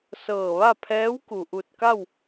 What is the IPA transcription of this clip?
s ɤː˧˩ ʋ a˥˨ pʰ ɛː˧˥ w k u˩ ʔ u˧˩ t̚ k a˥˨ w

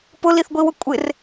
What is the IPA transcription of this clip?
p ʊ l i θ ɡʷ i w ʊ kʷʼ ɪ r

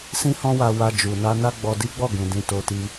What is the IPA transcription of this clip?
s ĩ˦ h ɔ̃˦ w a˧ w a˧ d͡ʒ u˨ n a˧ n a˦ ɡ͡b ɔ˧ d i˦ ɡ͡b ɔ˦˨ ɡ ũ˨ d ĩ˧ t o˧ t i˧

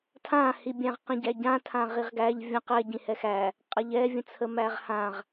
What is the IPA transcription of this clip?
tʰ ã h i bʲ æ̃ ʁ q ĩ ɟ æ ɟ ã tʰ ã ʁ i ʁ ɡ æ ʎ vʲ ə̃ q ɛ ɟ ĩ h ɛ x æ | qʼ a ʎ ɛ vʲ ə̃ t͡sʰ ə m æ ʁ h ã ʁ

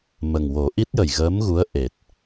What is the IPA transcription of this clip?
m ə˨˩ ŋ w o˨˩˦ ʔ i˦˥ t̚ j ə˨˩ j ɣ əː˧˥ m ɣ u˧˥ ə̯ ʔ e˨˩ t̚

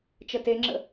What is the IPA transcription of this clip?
t͡ʃ ə t e ŋ͡ǁ ə̰

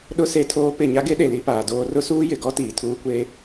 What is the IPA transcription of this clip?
ɗ ʊ˦ s e˦ tʰ oː˦ p ɪ˦˨ ɲ a˦ ɡ e˦ ɗ e˨ l i˦ p aː˨ d oː˦ r ʊ˦ s uː˦ j ɪ˨ ɡ ɔ˦ t iː˨ tʰ uː˦ kʷ eː˦

